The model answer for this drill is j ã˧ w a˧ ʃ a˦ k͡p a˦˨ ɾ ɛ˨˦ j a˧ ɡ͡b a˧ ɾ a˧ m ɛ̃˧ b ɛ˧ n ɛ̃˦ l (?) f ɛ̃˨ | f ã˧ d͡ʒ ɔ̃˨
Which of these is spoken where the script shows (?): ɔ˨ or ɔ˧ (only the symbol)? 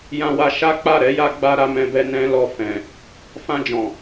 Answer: ɔ˧